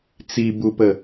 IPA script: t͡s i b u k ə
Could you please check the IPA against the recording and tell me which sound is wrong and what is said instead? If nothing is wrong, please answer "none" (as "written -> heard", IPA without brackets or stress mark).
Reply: k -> p